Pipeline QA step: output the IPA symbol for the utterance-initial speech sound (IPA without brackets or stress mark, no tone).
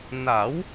n